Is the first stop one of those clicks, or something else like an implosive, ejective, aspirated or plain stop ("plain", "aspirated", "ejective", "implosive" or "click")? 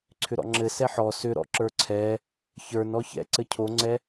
click